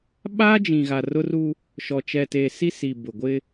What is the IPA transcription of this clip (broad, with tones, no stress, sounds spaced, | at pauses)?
ɓ a˦ d͡ʒ ĩ˨ ɣ a˨ r ʊ˦ r uː˦ | ʃ ɔ˨ t͡ʃ ɛ˨ t eː˨ s i˦ s i˨ b ʊ˨ ɡʷ ɪ˦